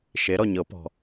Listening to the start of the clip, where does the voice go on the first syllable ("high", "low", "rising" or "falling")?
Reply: rising